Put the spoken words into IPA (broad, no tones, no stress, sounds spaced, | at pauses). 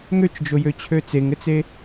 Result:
ŋ ø t͡ʃ d͡ʒ o j ø t͡ɕʰ ø t͡s e ŋ ɘ t͡s e